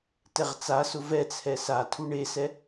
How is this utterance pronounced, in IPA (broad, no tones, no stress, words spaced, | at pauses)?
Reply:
tɛʁt͡sasʊ vɛt͡sʰɛ satʰu ɳesɛ